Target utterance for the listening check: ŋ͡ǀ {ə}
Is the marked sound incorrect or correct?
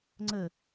correct